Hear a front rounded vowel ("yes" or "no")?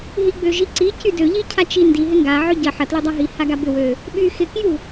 yes